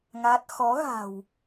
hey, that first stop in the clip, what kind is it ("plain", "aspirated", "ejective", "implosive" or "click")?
plain